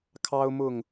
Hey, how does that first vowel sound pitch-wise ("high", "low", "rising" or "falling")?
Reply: high